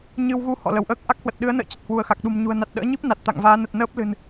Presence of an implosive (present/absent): present